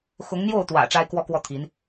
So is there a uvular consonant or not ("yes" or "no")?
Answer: no